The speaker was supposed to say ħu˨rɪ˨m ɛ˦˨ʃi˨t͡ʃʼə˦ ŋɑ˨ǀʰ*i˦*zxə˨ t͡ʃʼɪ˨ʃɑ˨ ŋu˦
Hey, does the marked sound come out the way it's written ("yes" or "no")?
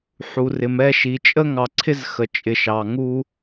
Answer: no